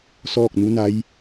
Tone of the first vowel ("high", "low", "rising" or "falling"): falling